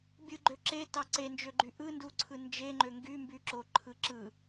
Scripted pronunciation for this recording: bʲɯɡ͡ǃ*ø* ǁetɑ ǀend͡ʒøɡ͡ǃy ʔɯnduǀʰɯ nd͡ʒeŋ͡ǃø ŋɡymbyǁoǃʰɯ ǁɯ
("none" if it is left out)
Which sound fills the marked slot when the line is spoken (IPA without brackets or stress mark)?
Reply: ø